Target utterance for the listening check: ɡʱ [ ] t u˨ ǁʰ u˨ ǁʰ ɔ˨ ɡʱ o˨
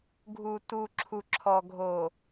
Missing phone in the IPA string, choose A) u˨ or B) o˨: A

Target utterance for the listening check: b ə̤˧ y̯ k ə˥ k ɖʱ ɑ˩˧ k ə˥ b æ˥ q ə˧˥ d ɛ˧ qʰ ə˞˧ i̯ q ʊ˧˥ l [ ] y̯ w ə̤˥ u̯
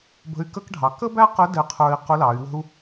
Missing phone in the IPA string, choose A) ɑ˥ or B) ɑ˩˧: B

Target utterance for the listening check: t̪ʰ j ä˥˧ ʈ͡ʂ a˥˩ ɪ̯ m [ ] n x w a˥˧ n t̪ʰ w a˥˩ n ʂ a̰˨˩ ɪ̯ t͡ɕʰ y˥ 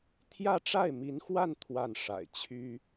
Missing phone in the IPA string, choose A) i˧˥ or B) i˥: A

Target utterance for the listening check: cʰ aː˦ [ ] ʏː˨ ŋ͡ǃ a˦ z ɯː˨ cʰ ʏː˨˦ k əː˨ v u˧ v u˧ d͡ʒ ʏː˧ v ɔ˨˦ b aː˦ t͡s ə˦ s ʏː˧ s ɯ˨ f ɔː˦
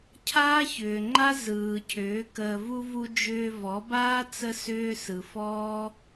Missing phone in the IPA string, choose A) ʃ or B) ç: B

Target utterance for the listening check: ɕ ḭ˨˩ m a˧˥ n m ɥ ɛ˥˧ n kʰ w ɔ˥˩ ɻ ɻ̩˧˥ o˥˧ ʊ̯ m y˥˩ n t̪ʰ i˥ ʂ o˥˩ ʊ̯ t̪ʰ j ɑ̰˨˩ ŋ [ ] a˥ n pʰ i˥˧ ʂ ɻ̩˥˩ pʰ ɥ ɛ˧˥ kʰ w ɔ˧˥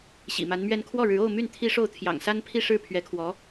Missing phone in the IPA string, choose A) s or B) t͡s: A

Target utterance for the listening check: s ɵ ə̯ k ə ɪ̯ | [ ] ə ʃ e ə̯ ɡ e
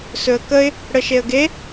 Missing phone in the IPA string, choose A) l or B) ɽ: B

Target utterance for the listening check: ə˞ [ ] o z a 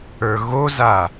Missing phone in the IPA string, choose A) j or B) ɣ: B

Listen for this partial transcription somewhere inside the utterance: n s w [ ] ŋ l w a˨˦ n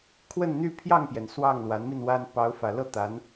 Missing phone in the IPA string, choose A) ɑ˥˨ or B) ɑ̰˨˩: A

